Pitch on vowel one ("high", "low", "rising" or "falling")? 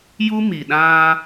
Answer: high